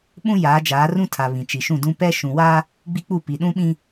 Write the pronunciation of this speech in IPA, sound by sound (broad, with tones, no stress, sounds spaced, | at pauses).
ɓ ũ˦ j aː˨˦ d͡ʒ aː˨˦ r ũ˦ tʰ a˨ β ĩ˨ t͡ʃ i˨ ʃ ũ˦˨ d ũ˦ p ɛ˦ ʃ ũ˨ w aː˦ | ɡ͡b i˦ k͡p u˦˨ p i˨ ɗ ũ˦ ɓ ĩ˦